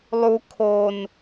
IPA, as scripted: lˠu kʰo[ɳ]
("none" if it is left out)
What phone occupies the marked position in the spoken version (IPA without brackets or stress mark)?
n